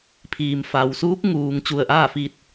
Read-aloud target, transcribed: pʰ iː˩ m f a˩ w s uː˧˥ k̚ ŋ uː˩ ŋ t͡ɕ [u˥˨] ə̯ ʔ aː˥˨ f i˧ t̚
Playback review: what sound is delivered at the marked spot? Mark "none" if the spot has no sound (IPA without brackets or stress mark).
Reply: u˧˩